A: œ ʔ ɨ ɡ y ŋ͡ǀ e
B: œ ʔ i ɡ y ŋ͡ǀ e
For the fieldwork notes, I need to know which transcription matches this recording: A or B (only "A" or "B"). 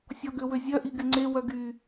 B